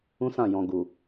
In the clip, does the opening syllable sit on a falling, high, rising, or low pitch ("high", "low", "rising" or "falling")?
high